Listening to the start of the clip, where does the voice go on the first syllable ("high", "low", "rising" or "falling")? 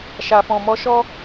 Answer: low